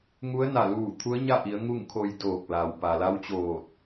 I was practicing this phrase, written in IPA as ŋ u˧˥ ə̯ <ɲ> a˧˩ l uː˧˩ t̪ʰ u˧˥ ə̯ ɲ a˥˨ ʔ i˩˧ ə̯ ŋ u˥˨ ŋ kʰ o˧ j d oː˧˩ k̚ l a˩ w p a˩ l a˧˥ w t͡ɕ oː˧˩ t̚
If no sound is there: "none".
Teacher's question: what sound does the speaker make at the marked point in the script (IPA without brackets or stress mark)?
n